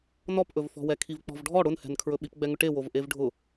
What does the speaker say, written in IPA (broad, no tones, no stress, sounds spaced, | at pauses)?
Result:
n ɔ p ʔ ɵ v f ɔ̤ w ɛ kʰ i v k͡p ɔ̤ v ɖʱ ɔ ɽ ʊ n h ɛ̤ n kʰ ɹ ɵ ɓ i p ɡ͡b ɛ ŋ ʊ ʈ e w o v ʔ e v ɖʱ ʊ